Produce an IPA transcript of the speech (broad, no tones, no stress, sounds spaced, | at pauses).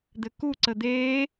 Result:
d̪ ɘ k u ǀ ə d̪ eː